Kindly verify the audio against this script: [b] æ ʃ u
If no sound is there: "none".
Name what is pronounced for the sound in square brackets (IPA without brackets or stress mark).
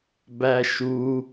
b